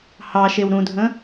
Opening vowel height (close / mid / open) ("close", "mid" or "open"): open